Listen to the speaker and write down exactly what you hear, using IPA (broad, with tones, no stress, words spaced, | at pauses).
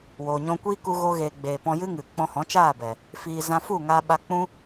woː˨ɲɔ̃˧kʷiː˦ ku˧ɣo˧ɣeː˨ɡ͡beː˨ pɔ̃˧jɨ˦ŋɨ˨ k͡pɔ̃˧hɔ̃˨˦t͡ʃaː˦˨bɛ˨ | fiː˨ zã˧fu˦˨ŋaː˧ ɓa˧ k͡pũ˦